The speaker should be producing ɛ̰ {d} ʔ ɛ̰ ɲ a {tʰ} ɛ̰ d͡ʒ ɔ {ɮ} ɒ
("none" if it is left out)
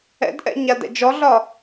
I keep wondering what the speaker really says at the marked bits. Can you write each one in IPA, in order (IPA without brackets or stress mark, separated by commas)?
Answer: d, d, ɮ